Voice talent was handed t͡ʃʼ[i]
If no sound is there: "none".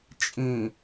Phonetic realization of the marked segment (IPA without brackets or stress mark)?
ĩ